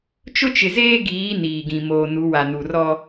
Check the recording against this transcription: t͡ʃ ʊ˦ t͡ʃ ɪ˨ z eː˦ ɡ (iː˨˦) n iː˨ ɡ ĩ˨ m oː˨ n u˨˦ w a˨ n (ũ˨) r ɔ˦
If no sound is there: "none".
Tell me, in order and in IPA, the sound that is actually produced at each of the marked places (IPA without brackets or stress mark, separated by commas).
iː˨˦, u˨